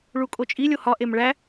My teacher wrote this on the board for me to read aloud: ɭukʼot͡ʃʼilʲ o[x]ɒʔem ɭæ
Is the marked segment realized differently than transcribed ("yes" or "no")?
yes